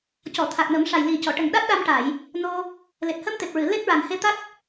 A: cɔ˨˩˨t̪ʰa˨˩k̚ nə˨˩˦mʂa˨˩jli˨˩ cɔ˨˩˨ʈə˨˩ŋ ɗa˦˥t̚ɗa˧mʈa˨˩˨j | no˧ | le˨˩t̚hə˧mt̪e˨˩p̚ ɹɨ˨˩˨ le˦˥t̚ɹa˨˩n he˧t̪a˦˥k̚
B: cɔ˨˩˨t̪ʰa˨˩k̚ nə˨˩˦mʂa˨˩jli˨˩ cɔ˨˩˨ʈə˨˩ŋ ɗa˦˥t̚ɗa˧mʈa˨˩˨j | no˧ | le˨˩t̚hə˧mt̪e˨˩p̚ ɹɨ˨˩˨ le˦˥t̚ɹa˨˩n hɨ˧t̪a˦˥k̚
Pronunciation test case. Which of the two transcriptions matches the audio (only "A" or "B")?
A